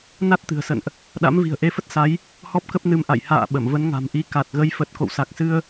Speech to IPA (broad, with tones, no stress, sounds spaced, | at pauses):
n a˦˥ t̚ t̪ ɨ̤˨˩ ə̯ s ə̰˧˨ n ʔ | ɗ a̰˧˥ m v i̤˨˩ ə̯ ʔ e˧ f ə˦˥ t̚ s a˨˦ j | h ɔ˦˥ p̚ k ə˦˥ p̚ n ɨ˧ m ʔ a̰˧˨ j h a̰ː˧˨ ɓ ə˧˩ m v ə˨˦ n ŋ a̤˨˩ m ʔ i˧ k a˨˩ t̚ ɣ ə˨˦ j f ə˨˩ t̚ k o̰˧˨ w s a˨˩ k̚ s ɨ˧ ə̯